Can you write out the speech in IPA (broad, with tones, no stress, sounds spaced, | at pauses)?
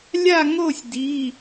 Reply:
lʲ a˥˧ ŋ o˥˧ sʲ d i˧˥˧